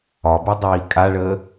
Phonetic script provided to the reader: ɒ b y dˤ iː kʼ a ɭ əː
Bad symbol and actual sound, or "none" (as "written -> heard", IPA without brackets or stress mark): none